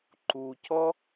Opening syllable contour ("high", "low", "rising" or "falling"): low